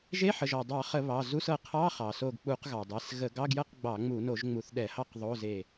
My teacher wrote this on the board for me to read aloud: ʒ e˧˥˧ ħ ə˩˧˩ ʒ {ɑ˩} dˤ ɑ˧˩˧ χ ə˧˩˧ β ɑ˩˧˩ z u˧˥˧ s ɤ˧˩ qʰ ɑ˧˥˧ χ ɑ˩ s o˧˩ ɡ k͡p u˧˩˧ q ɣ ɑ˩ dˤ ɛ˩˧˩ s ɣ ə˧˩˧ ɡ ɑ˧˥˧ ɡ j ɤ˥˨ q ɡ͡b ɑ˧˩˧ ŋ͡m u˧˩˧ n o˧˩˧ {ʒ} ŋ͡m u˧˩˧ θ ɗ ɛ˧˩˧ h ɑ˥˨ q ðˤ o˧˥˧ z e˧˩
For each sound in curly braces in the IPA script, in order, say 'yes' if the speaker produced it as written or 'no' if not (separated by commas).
no, yes